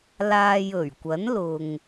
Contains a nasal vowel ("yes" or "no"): no